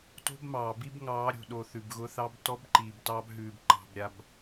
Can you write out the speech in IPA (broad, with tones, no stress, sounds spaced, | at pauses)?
t o̤˦ b m ɑː˨ b i˦ b ŋ ɑː˨˦ ɾʲ o̤˨ ɗ o˨ θ ʉ˨ b ɣ ʊ˦ θ ɑ˦ b t ɔ˦ b ǃ iː˨ b t ɑː˦ b ɦ ʉː˨ b ǃ ɑ̤˨ b ɾʲ a˨ b